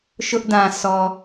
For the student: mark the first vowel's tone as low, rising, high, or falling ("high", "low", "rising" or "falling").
high